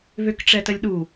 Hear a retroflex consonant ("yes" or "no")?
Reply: yes